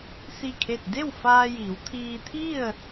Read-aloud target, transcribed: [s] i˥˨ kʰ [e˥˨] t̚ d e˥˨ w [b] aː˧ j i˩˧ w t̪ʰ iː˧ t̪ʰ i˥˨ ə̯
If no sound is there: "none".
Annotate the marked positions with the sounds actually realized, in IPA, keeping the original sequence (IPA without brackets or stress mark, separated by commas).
s, e˥˨, f